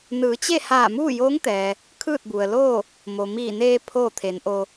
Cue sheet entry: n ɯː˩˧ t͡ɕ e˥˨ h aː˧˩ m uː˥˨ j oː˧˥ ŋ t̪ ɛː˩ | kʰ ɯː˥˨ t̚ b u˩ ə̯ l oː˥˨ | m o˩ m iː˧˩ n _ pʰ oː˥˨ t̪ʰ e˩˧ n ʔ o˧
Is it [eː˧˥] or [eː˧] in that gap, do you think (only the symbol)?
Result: eː˧